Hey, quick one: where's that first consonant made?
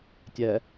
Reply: tongue tip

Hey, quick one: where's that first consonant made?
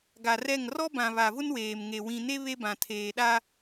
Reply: velum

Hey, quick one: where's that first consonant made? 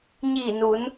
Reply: palate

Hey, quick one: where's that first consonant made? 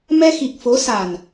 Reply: lips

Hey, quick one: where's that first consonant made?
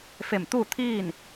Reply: lips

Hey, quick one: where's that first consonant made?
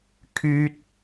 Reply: velum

